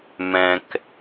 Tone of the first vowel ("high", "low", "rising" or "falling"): low